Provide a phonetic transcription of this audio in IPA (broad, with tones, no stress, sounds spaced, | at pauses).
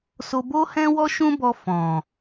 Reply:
s o˧ b o˦ h ɛ̃˦ w ɔ˦ ʃ ũ˦ b ɔ˧ f ɔ̃˨